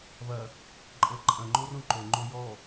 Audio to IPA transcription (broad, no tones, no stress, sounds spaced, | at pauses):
v ɐ | ǃʼ ɤ ǃʼ ɐ̃ ŋ͡ǃ o r õ ǃ o ŋ͡ǃ o j ɔ